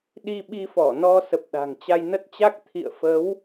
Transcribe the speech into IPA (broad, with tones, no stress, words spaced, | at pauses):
ɗi˧ɓi˧fɔ˧˩nɔ˧ sə˨˩p̚ɗa̤˨˩ŋ t͡ɕa˧jnə˦˥t̚t͡ɕa˦˥k̚ t̪ʰḭ˧˨ə̯ fə˨˦w